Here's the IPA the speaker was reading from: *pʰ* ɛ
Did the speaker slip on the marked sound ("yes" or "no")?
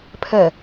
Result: no